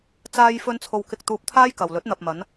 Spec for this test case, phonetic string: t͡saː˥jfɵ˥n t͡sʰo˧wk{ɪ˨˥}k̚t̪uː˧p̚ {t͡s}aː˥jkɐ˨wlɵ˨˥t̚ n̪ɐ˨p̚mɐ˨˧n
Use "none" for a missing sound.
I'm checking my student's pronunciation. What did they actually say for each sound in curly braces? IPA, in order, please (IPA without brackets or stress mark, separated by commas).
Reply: ɪ˧, t̪ʰ